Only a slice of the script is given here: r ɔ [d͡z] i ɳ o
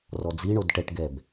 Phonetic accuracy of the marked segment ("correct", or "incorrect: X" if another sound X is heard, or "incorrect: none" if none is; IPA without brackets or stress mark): correct